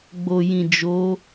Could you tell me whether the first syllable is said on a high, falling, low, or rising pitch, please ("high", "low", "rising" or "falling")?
low